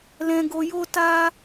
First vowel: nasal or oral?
nasal